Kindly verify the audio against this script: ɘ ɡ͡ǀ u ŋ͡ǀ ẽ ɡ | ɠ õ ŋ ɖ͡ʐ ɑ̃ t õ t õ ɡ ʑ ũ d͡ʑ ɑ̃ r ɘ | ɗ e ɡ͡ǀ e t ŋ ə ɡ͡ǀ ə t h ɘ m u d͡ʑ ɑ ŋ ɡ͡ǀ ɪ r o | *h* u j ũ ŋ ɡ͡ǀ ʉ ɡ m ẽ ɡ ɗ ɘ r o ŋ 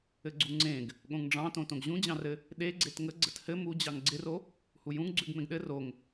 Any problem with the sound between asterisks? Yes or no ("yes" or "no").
no